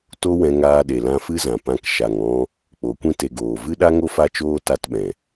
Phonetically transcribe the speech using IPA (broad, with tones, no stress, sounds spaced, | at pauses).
t o˦ w ɛ̃˧ ŋ aː˧ ɗ e˨ l ã˧ f ɨ˦ z ã˨ p ã˧ k ʃ a˨ ŋ ɔ̃˧ | k͡p o˨˦ kʷ ĩ˦ t e˧ ɡ oː˨ v ɨ˦ ɗ a˦ ŋ o˦ f a˦ t͡ʃ oː˦ t a˧ t ɓ ɛ̃˨